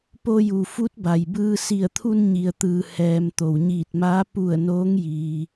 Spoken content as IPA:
p o˧ j u˩ f u˧˥ t̚ b a˩ j b ɯː˧ s i˧˩ ə̯ t̪ʰ u˧ n ɲ i˩ ə̯ t̪ ɯː˩ h ɛː˩ m t̪ o˩ w ɲ iː˧˩ t̚ m aː˧˥ p u˧˩ ə̯ n oː˧˥ ŋ j iː˩

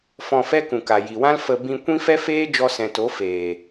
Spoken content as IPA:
f ɔ̃˧ f ɛ˦ k ũ˨ k a˨ j i˨ w ã˦ l f ə˧ b ĩ˧ kʷ ĩ˦ f ɛ˦ f eː˦ d͡ʒ ɔ˧ s ɛ̃˨ t o˨˦ f eː˨

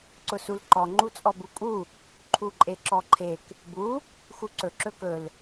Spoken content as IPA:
ǀ ʊ s u l ǃ ɔ ŋ͡ǃ u t͡sʼ ɔ b u kʼ u | ǃʰ u ǃʼ e ǁ ɔ ǃʰ e k | b u | x u ǀ ɵ ǁ ɵ k ɵ l

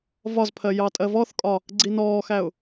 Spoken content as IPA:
v ɒ z pʰ ɜ j ɑ tʼ ɜ v ɔ θ kʼ ɒ | ɡ͡ǀ i n ɔː x æ ʊ̯

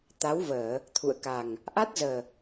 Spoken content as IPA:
t̪ a˨˦ w v əː˧˩˨ | t̪ʰ ṵ˧˨ ə̯ k a˨˩ ŋ | ʔ a˦˥ t̚ z əː˨˩

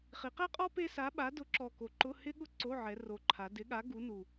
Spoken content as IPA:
χ i˩˧ q ɛ˥ qʼ ɔ˥ p e˥ s a˨˥ ɓ a˨˥ d ʊ˨˥ ǁ ɔ˨˩ k o˩˧ ǃ ʊ˧˥˧ h ɪ˥ ɠ ʊ˥ ǀ o˧˥˧ ʕ ɛ˩˧ r o˨˩ ǃʰ a˩˧ d ɪ˨˥ ɠ a˨˥ ɡ u˨˥ n u˨˩

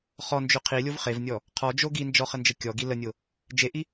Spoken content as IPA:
χ ɔ n d͡ʒ ø qʰ i lʲ o v χ e v nʲ ɔ | qʰ ɔ d͡ʒ o ɡ i n d͡ʒ ɔ χ ə n d͡ʒ ə kʲ ɔ ɡ i l ə nʲ o | d͡ʒ e ʔ i

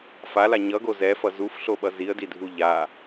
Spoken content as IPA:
f a l a ɲ ʌ ɡ o z ɛ f ʌ z u f ɬ o ɓ ʌ z i ə̯ d i dʱ u ʎ a

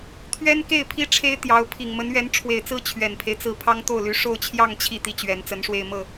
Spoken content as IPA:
t̪ʰ ɥ ɛ˥ n k e˥˩ ɪ̯ pʰ i˥ ʈ͡ʂʰ e˥ ɪ̯ t̪ j ɑ˧˥ ʊ̯ pʰ i˨˩ ŋ m ə˧˥ n ɥ ɛ˧˥ n ʈ͡ʂʰ w e˨˩ ɪ̯ t͡s ɹ̩˥ t͡ɕʰ ɥ ɛ˨˩ n pʰ e˦ ɪ̯ t͡s ɹ̩˥˩ pʰ ɑ˥ ŋ t̪ o˥˩ ʊ̯ l y˧˥ ʂ o˥˧ ʊ̯ t͡ɕʰ j ɑ˥˧ ŋ t͡ɕʰ i˥˧ t̪ i˥˩ t͡ɕ ɥ ɛ˧˥ n t͡s ə˧˥ n ʂ w e˥˧ ɪ̯ m ɤ˥˩

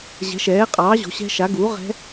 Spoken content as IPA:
ʑ ɛ̤˨˥ ʃ ɛː˨˥ qʼ ɑː˨˥ ʑ o̤˨˥ ɕ ɛ̤˦˥ ʃ a˨˥ ɡ u˨˥ ʁ ɛ̤˦˥

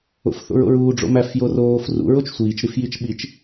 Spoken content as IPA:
o̰ f θ o̰ ɹ o̰ ɹ uː ɖ͡ʐ o̰ m æ f j o r oː f r ṵ ɹ o t͡ʃ sʷ iː t͡ʃ ɾ i f j i t͡ʃ ɓ i t͡ʃ

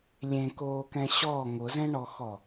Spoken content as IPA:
lʲ ẽ k oː k ɛ̃ ɕ ɔ ŋ ʊ z ɛ̃ ɳ ɔ x ɔ

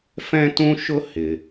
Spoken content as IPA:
f ɛ̃˥ t ũ˥ ʃ ʊ˥ h ɪ˩

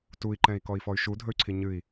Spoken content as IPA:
t u i̯ ǃ ɛ̃ i̯ k ɔ i̯ f ɔ y̯ ʃ u dʱ ɵ y̯ ǀʰ i ɲ ɨ i̯

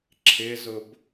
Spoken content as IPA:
ǁʰ ɪ z ʊ b

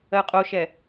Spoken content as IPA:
ɜ qʼ o ʃ ɛ

